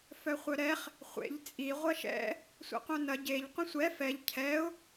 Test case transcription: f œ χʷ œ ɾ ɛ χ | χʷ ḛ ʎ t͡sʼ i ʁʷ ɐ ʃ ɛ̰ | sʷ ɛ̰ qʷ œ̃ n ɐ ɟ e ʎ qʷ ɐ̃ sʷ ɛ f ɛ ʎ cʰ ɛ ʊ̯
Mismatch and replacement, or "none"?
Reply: none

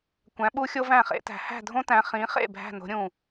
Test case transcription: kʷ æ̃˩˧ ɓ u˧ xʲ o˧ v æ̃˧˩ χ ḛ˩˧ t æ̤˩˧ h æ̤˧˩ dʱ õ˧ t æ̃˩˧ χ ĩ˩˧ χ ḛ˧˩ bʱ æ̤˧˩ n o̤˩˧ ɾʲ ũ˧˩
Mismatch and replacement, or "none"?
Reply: none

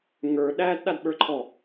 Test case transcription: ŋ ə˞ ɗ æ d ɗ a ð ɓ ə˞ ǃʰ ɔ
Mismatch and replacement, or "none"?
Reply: ð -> d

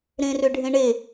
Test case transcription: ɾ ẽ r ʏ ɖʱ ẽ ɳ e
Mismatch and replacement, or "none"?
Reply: none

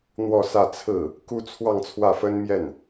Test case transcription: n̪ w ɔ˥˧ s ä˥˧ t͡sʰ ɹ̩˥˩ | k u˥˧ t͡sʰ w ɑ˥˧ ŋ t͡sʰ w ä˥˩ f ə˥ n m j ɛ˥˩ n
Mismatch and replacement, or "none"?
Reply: none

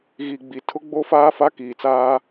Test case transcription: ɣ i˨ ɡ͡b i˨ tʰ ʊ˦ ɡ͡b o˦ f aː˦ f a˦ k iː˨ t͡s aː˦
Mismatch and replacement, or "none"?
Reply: none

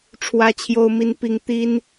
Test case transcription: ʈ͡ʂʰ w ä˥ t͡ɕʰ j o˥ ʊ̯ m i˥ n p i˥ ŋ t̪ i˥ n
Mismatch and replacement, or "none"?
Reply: none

